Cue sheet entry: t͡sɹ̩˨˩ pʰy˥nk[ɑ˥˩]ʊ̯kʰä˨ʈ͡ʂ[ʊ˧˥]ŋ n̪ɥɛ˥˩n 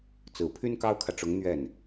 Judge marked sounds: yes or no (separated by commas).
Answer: no, yes